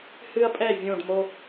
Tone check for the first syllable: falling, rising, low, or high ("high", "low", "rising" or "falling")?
high